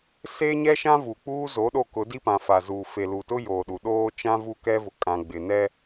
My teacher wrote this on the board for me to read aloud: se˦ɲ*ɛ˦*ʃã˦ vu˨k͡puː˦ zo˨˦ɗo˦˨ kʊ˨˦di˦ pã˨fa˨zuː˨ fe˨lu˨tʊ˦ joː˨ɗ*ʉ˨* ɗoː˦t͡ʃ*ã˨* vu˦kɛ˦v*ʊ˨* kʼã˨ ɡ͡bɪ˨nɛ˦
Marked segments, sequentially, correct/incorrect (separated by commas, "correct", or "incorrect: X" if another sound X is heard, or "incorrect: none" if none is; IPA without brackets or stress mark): correct, incorrect: u˨, incorrect: ã˦, correct